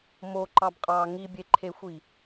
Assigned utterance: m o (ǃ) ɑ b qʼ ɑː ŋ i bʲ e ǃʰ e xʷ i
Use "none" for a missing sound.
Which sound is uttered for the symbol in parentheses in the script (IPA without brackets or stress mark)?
ǃ